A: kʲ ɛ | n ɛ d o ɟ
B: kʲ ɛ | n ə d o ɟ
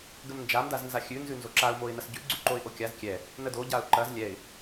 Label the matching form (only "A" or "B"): B